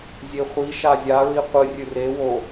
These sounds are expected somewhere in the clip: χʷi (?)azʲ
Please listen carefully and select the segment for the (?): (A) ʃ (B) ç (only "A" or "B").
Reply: A